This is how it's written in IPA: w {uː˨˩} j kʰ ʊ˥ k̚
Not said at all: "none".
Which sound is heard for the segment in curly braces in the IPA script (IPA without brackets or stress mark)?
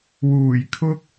uː˨˩